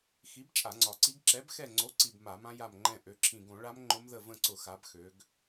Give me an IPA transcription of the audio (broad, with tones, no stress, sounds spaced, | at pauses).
x i˨˥ b t͡ʃʼ a˧˩˧ ŋ͡ǀ ɒ˨˩ ǀ i˦˥ ɡ ǁ ɛ˨˥ b x ɛ˦˨ ŋ͡ǀ o˨˥ ǀ i˨˩ b m a˧˩˧ m ã˦˥ j a˦˨ m ŋ͡ǃ ɛ̃˦˨ ʔ ø˩˧ ǁʰ ĩ˨˩ ɡ õ˧˩˧ ɭ a˦˥ m ŋ͡ǃ ʊ˦˥ m ð ə˦˨ v ə̃˦˨ ǀ ʊ˧˩˧ x a˩˧ b x ø˩˧ ɡ